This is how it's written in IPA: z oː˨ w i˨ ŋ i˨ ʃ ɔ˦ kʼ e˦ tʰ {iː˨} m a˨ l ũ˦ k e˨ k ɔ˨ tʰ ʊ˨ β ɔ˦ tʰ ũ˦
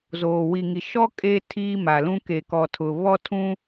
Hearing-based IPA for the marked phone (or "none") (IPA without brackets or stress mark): iː˦